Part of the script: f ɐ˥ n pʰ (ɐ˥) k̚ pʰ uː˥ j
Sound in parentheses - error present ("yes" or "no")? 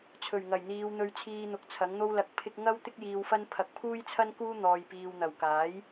yes